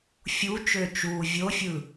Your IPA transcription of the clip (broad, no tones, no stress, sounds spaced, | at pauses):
fʲ u t͡ʃ øː t͡ʃ uː vʲ o fʲ ɯ